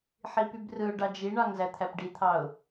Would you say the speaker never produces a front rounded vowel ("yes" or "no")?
no